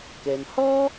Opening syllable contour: low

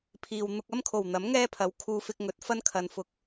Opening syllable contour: low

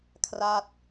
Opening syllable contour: falling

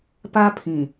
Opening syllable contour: high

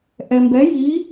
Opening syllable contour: low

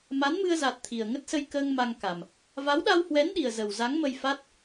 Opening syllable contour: rising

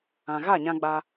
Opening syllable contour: low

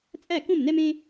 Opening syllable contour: falling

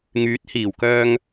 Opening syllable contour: rising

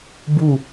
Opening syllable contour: falling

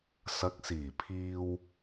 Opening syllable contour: rising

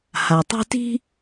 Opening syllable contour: low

